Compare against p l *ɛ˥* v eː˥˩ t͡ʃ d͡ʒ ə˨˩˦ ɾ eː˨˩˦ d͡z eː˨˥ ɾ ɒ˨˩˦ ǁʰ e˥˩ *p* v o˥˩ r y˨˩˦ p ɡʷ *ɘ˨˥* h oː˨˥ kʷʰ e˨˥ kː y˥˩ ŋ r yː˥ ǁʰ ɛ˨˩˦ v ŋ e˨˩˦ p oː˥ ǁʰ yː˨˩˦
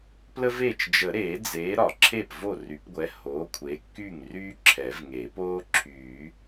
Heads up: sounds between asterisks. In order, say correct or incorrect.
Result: incorrect: ə˥, correct, incorrect: ɛ˨˥

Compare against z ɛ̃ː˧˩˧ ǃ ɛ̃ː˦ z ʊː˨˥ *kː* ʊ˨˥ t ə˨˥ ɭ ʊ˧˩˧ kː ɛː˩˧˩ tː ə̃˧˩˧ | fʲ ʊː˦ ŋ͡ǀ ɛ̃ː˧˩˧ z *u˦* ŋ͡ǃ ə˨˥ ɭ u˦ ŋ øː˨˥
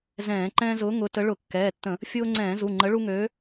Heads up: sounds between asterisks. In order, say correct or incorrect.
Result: incorrect: ŋ, incorrect: u˩˧˩

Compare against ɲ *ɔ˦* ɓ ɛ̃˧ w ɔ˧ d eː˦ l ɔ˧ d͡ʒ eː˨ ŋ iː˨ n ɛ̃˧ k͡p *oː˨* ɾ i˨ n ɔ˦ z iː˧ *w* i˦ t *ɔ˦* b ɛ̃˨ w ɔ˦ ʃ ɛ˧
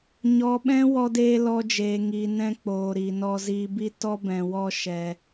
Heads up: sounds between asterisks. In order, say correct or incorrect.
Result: incorrect: ɔ˨, correct, incorrect: b, correct

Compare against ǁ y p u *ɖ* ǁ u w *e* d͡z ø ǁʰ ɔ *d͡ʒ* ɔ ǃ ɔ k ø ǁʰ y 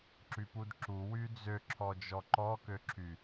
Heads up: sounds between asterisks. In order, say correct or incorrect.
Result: incorrect: d, incorrect: y, correct

